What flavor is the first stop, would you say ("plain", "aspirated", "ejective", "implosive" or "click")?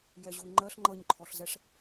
click